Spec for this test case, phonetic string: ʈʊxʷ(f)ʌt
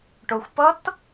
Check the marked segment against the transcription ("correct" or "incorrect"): incorrect